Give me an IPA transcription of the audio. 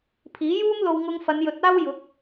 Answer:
pʰ iː˨˥ j uː˥ m l o˧ w ŋ ʊ˧ ŋ f ɐ˨˧ n j ɵ˨˥ t̚ aː˥ w j ʊ˨˥ k̚

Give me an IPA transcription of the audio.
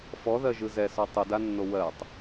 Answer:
f ɔ ð ɜ ʒ ɯ z ɛ s ɔ tˤ ɯ d a nː o w ɜ tˤ

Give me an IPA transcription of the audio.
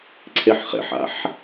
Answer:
ǀʰ e ħ χ ḛ ħ a̰ ħ

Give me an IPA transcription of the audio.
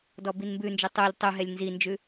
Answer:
d ɔ b i n m b ʉ n d͡ʒ u tˤ u lʲ tˤ u ɦ ɛ lʲ n z i n d͡ʒ ʉ

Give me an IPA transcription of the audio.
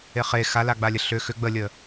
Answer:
e χ e x a l a ɡ͡b a lʲ ə ɬ ʏ x ʏ ɡ͡b ə lʲ ə

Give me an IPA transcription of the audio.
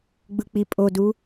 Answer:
ɡ͡b ɯ k͡p i pʼ o d u

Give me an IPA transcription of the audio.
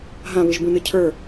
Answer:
ɦ ã β ɨ ʒ b ũ n ɨ cʰ ə˞

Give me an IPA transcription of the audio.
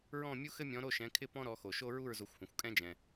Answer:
ɹ ɔ̃˥˨ mʲ u˥ x ɘ˥ mʲ ɔ̃˨˦ ɾ o˥˨ ʃ ɛ̃˨˦ kʰ ɪ˥˨ p ɔ̃˥ ɾ ɔ˨˦ x o˩ ʃ o˥ ɹ u˥˨ ɹ z o˨˦ xʷ h ũ˩ xʷ kʼ ɛ̃˥ d͡ʒ ɛ̃˩

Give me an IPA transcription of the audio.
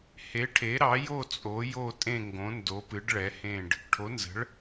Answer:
h e˩˥ ʈʰ e˩˥ ɾ ɑ˩˥ j o˥˨ t͡sʼ o˩˥ j o˥˨ tʼ ẽ˥˨ ŋ ɡ õ˩˥ n d o˩˥ p ɨ˩˥ ɖ ɭ ɛ˩˥ h ẽ˥˨ ɖ | ʈʰ o˩˥ n z ə̤˩˥ ɭ

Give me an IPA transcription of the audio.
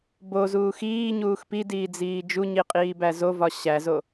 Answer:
b o z uː x iː ɲ uː x p i d iː d͡z iː d͡ʒ u ɲ i qʼ iː b æ z o v ɒ ɕ æ z o

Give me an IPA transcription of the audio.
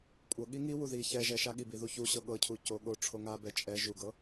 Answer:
kʷʼ ɤ ɠ i ŋ i w u ð i ç ɛ ʒ ɛ ʃ a ɠ i b i ð u ç u ɕ ɤ ɠ ɤ cʰ u c o ɠ o ʈ͡ʂʰ o ŋ a b ɛ t͡ʃʼ ɛ ʒ u ɡ ɤ

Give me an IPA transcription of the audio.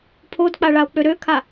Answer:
pʰ o d k͡p a ɭ a o̯ k͡p ø ɾ ø kʰ a

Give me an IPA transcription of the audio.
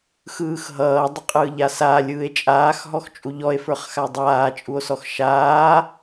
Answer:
x ɯː x ɦ ʌː dˤ ʏ qʼ ɯː ʎ a s a lʲ ɯː e̯ t͡ʃʼ aː x ɦ ɔ x t͡ʃʼ u ʎ ɔ e̯ f ə˞ χ x a dˤ aː t͡ʃʼ u o̯ s ɔ x ʃ aː

